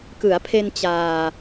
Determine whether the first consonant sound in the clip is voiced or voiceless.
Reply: voiceless